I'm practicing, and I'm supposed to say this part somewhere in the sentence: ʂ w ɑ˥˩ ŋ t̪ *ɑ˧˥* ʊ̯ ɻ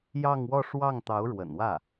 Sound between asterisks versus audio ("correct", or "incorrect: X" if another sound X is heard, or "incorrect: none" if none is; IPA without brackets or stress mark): correct